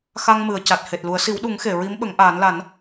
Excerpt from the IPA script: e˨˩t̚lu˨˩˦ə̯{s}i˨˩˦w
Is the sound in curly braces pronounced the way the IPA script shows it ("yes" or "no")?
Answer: yes